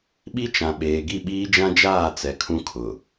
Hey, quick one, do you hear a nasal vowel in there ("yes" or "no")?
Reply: yes